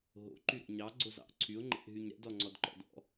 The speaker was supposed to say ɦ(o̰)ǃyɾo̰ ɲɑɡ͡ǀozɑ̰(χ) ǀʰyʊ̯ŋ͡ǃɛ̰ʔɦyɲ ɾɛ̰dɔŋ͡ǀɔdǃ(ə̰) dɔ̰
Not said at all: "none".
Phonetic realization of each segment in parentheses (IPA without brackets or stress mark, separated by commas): o̰, ʔ, ɔ̰